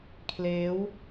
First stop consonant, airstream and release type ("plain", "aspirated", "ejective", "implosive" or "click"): aspirated